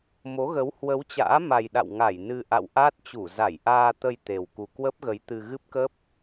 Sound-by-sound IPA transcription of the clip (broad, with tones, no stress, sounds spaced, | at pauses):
m o˨˦ ɣ ə˨˦ w h w ə˨˦ w t͡ɕ a̰ː˧˥ m a˨˩ j ɗ a̰˧˨ w ŋ a˧˩ j n ɨ˧ ʔ a̰˧˨ w ʔ aː˦˥ t̚ t͡ɕ u˧˩ z a˧˩ j ʔ aː˧ t̪ ə˧ j t̪ e˨˩ w k u˨˩ k w ə˦˥ p̚ ɣ ə˨˦ j t̪ ɨ˧ ɣ ɨ˦˥ p̚ k ə˦˥ p̚